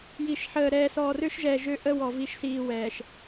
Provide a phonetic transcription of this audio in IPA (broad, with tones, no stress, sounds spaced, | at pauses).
j i˨ ʃ ħ əː˨ ɾ ɛː˨ s ɔː˨ r ø˦ ʃ ʒ ɛ˨ ʒ ø˦ ʔ ə˦ w ɔ˨ v i˨ ʃ s iː˨ w ɛ˨ ʃ